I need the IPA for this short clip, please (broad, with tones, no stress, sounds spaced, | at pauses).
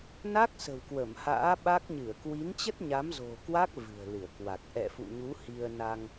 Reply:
n a˦˥ k̚ s ə̤˨˩ w k w ə˧˩ m h a̰ː˧˥ ɓ a˦˥ k̚ ɲ ɨ˧˩ ə̯ k w i˨˦ n t͡ɕ ə˦˥ t̚ ɲ a˨˦ m z o̤˨˩ k w a˦˥ k̚ v ɨ̤˨˩ ə̯ l ɨ˧˩ ə̯ k w a˨˩ k̚ ʔ ɛ̰˧˨ f ṵ˧˨ ɲ u˨˦ h i˧ ə̯ n a˧ ŋ